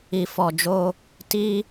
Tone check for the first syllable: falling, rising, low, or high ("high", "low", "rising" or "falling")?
low